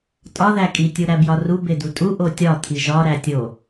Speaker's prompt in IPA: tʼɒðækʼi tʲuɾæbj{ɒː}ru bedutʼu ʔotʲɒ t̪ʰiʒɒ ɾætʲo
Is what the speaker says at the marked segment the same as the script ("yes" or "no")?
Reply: no